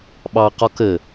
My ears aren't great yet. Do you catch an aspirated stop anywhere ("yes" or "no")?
no